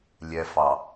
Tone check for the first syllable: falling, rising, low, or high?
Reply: low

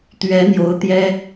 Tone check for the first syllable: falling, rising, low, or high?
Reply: rising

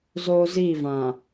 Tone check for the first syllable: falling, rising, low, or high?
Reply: high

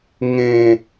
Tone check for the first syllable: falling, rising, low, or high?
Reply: falling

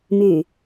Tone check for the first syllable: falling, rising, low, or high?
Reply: low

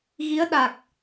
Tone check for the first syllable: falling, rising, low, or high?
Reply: rising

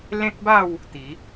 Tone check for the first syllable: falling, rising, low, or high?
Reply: high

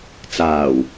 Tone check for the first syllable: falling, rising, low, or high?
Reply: low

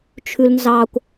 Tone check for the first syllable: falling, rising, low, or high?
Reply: high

